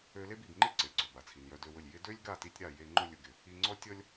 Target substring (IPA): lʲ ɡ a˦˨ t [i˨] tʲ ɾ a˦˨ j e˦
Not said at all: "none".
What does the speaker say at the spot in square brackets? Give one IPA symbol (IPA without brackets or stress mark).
i˧